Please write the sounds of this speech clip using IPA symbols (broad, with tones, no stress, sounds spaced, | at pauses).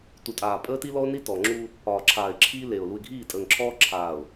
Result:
t u˨ tʼ aː˨ pʼ əː˦ t i˦ l ɔ˦ ʊ̯ n i˦ t ɔ˨ ŋ͡ǁ u˦ | ɒː˨ ǁʰ aː˨ ɪ̯ ǁʰ iː˦ l e˨ ʊ̯ l u˨ ɪ̯ ɡʱ iː˦˨ tʼ əː˨ ŋ ǁʰ ɔː˦ ǁʰ aː˨ ʊ̯